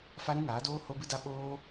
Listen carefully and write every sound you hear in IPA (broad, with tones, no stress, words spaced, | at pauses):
fa˦ɾũ˦ŋaː˨˦doː˦ ho˦bɨ˦da˦ ɓoː˦